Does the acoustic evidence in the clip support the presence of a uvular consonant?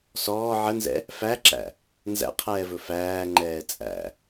yes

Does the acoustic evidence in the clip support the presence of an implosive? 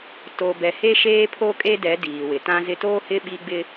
yes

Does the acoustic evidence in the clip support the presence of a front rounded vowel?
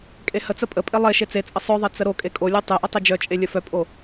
yes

